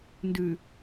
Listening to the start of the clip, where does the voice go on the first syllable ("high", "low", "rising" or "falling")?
low